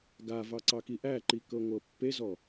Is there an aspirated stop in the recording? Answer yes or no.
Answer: no